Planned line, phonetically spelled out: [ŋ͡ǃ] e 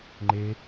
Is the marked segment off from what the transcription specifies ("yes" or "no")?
no